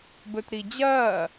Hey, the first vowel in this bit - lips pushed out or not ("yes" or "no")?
yes